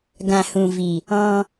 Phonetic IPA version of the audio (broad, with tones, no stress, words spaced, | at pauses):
ɡã˨hũ˨vi˨ | ɔ̃˧